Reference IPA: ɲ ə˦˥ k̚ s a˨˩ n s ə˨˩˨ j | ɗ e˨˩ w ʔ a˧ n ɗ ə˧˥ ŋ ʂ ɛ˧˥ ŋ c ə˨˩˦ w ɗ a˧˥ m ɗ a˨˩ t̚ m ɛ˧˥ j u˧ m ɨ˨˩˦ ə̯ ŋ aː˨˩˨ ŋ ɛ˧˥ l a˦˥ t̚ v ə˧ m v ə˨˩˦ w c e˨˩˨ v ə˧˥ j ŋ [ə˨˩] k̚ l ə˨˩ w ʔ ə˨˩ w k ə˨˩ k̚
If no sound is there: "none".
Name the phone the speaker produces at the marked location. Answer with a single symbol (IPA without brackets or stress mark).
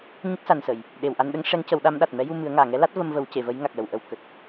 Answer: a˨˩